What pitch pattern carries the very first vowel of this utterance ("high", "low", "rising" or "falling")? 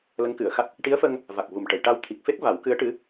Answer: rising